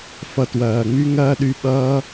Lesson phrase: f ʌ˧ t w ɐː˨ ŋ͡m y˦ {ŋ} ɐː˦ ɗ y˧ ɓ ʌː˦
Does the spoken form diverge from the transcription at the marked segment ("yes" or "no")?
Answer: no